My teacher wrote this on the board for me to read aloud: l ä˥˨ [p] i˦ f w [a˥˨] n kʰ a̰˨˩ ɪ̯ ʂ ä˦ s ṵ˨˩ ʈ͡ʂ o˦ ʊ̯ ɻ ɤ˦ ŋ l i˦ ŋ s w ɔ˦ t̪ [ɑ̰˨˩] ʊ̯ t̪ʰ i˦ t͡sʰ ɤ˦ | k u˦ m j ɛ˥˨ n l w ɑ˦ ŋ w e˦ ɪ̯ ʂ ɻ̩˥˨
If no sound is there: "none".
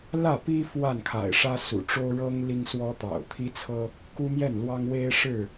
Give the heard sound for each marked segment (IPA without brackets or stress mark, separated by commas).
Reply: p, a˥˨, ɑ̰˨˩